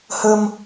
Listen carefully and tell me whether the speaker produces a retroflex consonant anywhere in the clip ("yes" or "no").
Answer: no